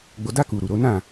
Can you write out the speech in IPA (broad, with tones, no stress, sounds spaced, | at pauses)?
ɡ͡b o˧ d a˦ k u˧ ɾ u˨ ɾ o˨˦ n ã˦˨